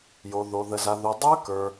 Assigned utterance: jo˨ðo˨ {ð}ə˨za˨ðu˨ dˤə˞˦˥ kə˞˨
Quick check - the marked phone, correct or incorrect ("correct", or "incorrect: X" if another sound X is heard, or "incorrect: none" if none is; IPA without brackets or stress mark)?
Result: correct